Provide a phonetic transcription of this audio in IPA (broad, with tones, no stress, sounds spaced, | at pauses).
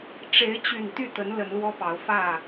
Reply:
ʈ͡ʂ e˨˦ ɪ̯ t͡ɕ y˨˩ n t̪ y˥˨ t̪ ə˨˦ n l ə˨˦ n l w ɔ˦ p ɑ˨˦ ʊ̯ f ä˥˨